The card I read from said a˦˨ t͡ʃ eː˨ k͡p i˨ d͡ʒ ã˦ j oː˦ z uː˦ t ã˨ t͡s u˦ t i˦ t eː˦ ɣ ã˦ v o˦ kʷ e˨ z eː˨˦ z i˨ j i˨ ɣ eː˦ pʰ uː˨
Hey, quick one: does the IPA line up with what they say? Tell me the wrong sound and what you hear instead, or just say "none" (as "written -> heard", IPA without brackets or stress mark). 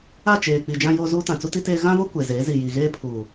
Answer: none